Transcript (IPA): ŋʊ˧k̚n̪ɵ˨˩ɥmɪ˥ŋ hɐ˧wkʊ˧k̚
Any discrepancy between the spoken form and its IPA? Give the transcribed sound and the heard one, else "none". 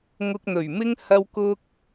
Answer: none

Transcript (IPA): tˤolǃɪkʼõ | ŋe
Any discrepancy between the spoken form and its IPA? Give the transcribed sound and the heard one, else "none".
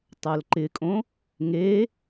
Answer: none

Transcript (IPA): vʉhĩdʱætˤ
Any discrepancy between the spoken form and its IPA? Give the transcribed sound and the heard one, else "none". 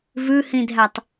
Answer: none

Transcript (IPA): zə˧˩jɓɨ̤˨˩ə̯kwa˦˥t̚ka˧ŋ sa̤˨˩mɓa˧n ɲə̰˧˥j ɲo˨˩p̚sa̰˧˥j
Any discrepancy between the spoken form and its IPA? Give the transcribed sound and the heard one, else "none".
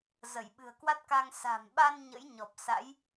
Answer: o˨˩ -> ɔ˨˩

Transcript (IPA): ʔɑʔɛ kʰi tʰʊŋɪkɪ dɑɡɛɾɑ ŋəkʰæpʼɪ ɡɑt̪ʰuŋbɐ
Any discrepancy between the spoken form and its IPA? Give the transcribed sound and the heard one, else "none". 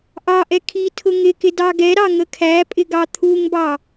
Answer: ɐ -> ɑ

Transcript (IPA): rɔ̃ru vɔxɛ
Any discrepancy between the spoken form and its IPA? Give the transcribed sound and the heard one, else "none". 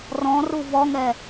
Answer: x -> ŋ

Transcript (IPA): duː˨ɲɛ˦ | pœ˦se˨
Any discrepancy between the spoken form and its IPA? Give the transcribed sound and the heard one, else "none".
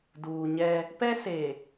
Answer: œ˦ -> ɛ˦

